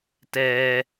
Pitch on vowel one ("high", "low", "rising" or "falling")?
high